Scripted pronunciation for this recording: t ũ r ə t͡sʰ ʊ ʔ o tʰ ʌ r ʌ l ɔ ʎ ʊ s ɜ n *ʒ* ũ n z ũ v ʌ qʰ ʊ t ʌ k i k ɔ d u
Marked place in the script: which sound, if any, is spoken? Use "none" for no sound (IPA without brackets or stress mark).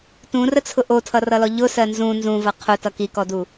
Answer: z